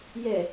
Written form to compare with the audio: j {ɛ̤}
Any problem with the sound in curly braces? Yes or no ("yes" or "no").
yes